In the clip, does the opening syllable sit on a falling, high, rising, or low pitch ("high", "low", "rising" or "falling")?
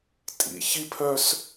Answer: low